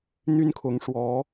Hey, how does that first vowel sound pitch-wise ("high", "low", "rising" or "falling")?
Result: high